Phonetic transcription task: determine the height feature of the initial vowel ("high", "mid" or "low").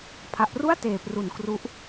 low